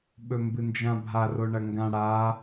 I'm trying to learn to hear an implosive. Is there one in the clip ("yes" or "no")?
yes